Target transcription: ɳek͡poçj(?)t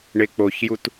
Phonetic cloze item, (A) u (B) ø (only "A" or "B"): A